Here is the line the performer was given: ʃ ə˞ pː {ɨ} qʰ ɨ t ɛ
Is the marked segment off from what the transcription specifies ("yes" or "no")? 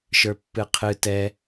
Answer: no